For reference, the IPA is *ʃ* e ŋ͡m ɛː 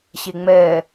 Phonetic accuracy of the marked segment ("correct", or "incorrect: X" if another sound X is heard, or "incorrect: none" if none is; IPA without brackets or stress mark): incorrect: ɕ